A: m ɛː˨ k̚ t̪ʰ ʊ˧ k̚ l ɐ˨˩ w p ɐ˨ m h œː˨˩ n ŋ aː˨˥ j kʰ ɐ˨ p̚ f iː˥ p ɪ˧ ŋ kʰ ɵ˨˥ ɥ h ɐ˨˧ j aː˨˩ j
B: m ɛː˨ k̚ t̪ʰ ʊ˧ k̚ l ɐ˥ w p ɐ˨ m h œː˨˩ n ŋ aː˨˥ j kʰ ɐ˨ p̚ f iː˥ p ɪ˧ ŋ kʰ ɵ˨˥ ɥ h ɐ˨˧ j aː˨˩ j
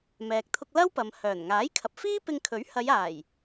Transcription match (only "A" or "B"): B